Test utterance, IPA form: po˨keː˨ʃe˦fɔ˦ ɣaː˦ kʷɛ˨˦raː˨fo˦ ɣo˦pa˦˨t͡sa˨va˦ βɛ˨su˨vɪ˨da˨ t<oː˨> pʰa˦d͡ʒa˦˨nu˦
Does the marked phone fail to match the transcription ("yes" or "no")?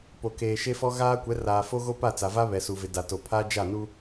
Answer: yes